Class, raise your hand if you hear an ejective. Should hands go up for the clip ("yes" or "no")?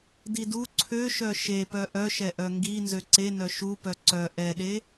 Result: no